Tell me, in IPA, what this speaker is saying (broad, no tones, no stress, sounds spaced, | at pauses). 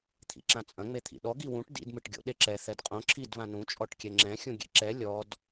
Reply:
t̪ʰ ḭ ǁ ã t͡sʼ ɐ̃ ŋ͡m e t̪ʰ ḭ ɗ ɔ ɡ i w ũ ʈ d ḭ d m ɨ ʈ ɡʲ o̰ ɗ e ǁ ɛ θ ɛ d qʼ õ ǁʰ i d β ã n ũ t͡ʃʼ ɔ ʈ kʲ ɛ ŋ͡ǁ ɛ̃ xʲ ũ ɡʲ ḛ ǁ ɛ lʲ ɔ d